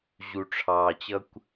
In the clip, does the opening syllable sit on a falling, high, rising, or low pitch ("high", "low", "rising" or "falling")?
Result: low